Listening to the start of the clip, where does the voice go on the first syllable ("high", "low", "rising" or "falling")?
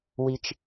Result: high